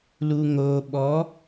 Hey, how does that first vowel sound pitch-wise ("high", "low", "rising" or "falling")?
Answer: low